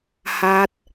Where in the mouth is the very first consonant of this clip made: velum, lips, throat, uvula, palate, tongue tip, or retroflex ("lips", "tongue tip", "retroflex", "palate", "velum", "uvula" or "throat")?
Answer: throat